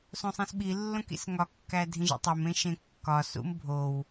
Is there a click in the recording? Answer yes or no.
no